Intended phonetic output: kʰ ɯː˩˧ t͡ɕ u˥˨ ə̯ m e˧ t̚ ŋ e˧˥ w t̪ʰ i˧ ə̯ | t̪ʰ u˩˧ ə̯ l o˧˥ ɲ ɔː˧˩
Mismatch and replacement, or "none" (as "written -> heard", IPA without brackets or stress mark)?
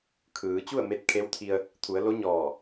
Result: ŋ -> kʰ